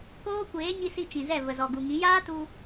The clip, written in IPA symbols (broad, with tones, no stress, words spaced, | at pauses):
koː˦kʷeː˨˦ɲi˧ si˧ t͡ʃĩ˨zɛ˦˨ və˨zɔ˨ɡu˨ŋĩ˨˦ jaː˦tu˧